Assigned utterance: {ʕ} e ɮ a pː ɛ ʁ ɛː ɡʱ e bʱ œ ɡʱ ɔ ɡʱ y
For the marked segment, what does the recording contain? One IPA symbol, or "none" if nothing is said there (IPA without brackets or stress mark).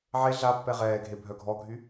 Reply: ʕ